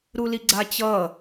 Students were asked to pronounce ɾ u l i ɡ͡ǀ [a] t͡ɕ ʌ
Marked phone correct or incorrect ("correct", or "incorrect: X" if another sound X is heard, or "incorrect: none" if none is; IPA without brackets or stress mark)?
correct